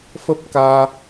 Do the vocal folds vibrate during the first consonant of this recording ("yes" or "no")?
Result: no